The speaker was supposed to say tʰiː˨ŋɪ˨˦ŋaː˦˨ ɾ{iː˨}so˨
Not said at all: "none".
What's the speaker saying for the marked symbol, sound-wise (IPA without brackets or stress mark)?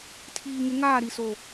i˨